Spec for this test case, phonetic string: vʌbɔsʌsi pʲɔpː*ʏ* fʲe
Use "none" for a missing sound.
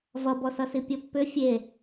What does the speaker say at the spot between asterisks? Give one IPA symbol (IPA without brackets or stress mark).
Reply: ʏ